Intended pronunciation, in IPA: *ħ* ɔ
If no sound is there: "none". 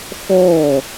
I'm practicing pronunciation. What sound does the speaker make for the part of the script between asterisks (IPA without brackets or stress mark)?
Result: x